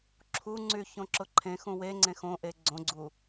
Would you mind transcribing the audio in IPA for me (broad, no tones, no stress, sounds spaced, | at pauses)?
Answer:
ǁʰ u ŋ͡ǀ y ç õ ǁ ʊ ǃʰ ẽ x ũ w e ŋ͡ǀ ẽ x õ ʔ e ɡ͡ǀ õ ɡ͡ǀ u